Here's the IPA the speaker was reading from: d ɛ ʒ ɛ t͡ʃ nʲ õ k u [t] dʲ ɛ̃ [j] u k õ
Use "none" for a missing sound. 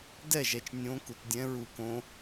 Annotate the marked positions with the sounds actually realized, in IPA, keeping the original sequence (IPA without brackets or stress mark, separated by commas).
t, ɹ